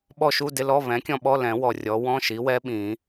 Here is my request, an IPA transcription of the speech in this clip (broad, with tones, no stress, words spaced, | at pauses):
ɓɔ˦˨ʃu˧˥˧dɪ˧˥˧ lɔ˧˥˧βɛ̃˩˥kʲɔ̃˦˨ ɓɔ˧˥˧lɛ̃˨˩˦ wɔ˨˩rʲɔ˩˥ wɔ̃˧˥˧ʃi˩˥wɛ˧˥ ɓĩ˨˩˦